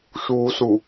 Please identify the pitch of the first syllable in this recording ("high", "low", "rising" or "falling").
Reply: low